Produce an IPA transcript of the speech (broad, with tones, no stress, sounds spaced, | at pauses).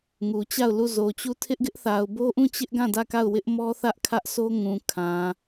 ŋ u˨ t͡ɕ a˦˨ ʊ̯ l u˦˨ z o˨ t͡ɕ u˦˨ tʰ ɪ˦ ʔ ɡ ɪ˦ ʔ θ a˨ ʊ̯ b o˦ ʔ ũ˦˨ t͡ɕ ɪ˦ ʔ ɡ ã˦˨ d ä˦˨ k a˦˨ ʊ̯ w ɪ˦ ʔ m ɔ˦ θ ä˦ ʔ kʰ ä˦ ʔ s o˦ ŋ ũ˨ kʰ ã˨